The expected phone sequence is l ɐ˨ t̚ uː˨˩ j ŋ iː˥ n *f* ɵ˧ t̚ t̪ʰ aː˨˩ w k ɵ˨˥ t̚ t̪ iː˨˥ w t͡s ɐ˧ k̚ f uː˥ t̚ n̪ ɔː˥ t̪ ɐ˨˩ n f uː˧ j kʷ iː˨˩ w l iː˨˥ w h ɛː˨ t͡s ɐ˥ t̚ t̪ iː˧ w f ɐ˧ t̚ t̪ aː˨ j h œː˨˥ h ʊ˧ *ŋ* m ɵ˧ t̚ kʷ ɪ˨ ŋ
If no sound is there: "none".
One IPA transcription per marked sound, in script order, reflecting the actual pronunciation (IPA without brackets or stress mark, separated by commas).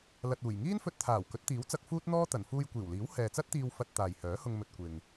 f, ŋ